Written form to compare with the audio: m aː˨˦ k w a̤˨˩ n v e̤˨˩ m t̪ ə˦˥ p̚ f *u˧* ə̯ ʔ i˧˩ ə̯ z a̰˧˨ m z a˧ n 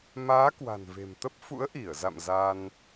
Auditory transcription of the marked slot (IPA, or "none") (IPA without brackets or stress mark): ṵ˧˥